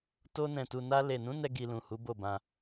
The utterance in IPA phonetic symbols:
to˧nɛ̃˨tu˨ na˧le˨nũ˨˦ nɛ˦ɡi˧lũ˨hu˨˦ bo˦˨bã˧

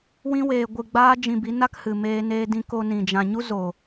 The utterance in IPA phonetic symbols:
wĩ˦weː˧ ɡʷɨ˧ɡ͡baː˦d͡ʒĩ˧bi˨˦ na˦khɨ˨ meː˧neː˧dĩ˧ ko˧ nĩ˨d͡ʒã˨ɲu˦ zo˨

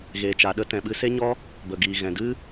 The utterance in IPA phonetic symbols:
ɣeː˨t͡ʃa˨ɗə˦ tɛ̃˨ɓɨ˧se˦ɲɔ˦ | bə˨ɡiː˨ ɣɛ̃˨dɨ˦

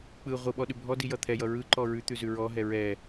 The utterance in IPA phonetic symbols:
k͡pɯ ʁʷɯɓɔɗʉ bʱɔdijʌ t̪ʰɛjʌ ɹɯǃɔ ɹʉt̪ʉzʉ ɹɔɦɛ ɹɛ

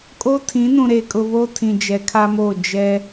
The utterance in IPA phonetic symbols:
kʼo˦tʰĩ˨˦nũ˨ ɾe˨kʼʊ˨βo˦ tʰĩ˨d͡ʒɛ˨˦kʰa˦mo˦˨ d͡ʒɛ˦

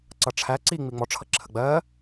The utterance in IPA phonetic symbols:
ǀʌʈ͡ʂʰæ ǀi ŋ͡miŋ͡mɔ ʈ͡ʂʰʌǁʰəɡ͡bɜ

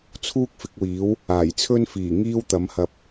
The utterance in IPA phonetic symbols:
t͡sʰuː˥k̚fɪ˨˥k̚wiː˨˥w | aː˨˩jt͡sʰɵ˥nfiː˨˩ ŋiː˥wt̪ɐ˨˥mhɐ˧p̚

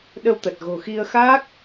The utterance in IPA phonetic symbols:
ɗə˧wt̪ə˨˩t̚ɣo̤˨˩xi˧ə̯ xa˦˥k̚

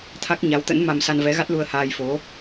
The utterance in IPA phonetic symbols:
t̪ʰa˦˥k̚ɲa˨˦wt̪ə̰˧˥n ma˧msa˧nvɛ˨˦ɣa˦˥t̚ lu˧ə̯haː˧jfo˨˦

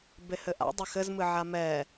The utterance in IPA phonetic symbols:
behɘʔa̰dˤɛ xɘzmɨ ʕamɛː

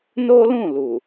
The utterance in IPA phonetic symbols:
no˦lũ˦˨lu˨

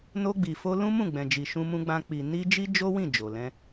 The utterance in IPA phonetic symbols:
no˧ɡ͡bi˨fo˧ lũ˦mũ˦˨ɡ͡bɛ̃˨d͡ʒi˨ ʃũ˧mũ˧ɡ͡bã˧ k͡pi˨ ni˧ d͡ʒi˦d͡ʒo˦wĩ˦˨ d͡ʒo˨lɛ̃˧

